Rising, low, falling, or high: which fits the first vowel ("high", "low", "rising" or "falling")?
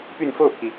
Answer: falling